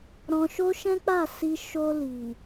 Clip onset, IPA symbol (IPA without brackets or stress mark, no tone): ɾ